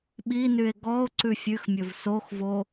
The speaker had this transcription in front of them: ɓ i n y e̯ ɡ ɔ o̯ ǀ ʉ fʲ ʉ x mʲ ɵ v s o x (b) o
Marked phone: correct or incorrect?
incorrect